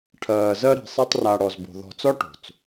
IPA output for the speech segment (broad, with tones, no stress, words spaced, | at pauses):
ʈʰɜː˨zɜ˦ ɾi̤˨sˤe˦tˤra˨ ɽɔ˨zbo̤˨ ðɔ̤˨t͡sɔ˦ ʈo̤˨t͡s